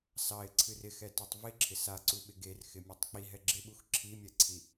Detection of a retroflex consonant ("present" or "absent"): absent